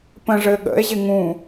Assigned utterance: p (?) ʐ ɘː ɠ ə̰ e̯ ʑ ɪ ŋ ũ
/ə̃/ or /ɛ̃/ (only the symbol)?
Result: ə̃